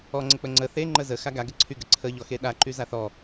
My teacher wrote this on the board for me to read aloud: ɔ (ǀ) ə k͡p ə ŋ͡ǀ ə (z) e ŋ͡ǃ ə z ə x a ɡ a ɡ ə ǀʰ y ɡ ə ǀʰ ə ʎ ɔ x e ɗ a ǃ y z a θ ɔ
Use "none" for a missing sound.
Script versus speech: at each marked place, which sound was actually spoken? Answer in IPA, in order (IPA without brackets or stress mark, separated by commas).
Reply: ŋ͡ǀ, θ